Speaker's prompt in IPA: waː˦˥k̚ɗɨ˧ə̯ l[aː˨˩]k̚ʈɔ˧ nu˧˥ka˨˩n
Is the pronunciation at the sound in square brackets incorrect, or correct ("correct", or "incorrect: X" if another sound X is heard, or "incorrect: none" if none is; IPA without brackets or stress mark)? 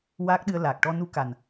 correct